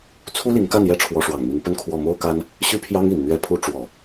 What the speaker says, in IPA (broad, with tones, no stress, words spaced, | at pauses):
t͡sʰu˥li˧˥ŋka˥˩n jɛ˧˥ ʈ͡ʂʰwɔ˧˥ʂwɑ˨˩ŋmi˧˥ŋ pə˥˧nkʰwɔ˥˩ mo˥ʊ̯ka˥n | ɕy˥pʰjɑ˥ŋi˨˩n n̪ɥɛ˧˥pʰu˧˥ ʈ͡ʂwɔ˨˩˦